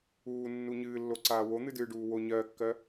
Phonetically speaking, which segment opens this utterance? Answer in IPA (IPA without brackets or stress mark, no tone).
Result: uː